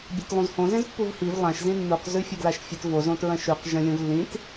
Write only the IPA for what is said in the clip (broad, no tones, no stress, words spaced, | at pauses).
bʲatlˠũzhõ zẽzpːuvhiv lˠãʃ zĩnːuq zʉfʲɐɡlaʃfʲɨt vo zõtɹɐ̃ʃʉq ʒɐ̃lʲõvlːĩt